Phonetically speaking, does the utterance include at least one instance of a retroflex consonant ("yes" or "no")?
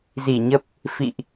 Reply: no